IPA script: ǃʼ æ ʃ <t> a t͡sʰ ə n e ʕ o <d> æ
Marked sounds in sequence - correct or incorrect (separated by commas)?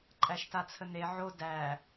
correct, correct